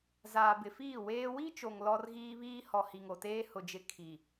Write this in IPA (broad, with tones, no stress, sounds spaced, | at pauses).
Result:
z aː˨ b ɪ˨ f iː˦˨ w eː˦ w i˦ t͡ʃ o˨ ŋ l ɔ˦ r ɣ iː˦ β iː˦ h ɔ˨ h i˨ ŋ o˨ t eː˦ h ʊ˨ d͡ʒ ɪ˨ kʰ i˨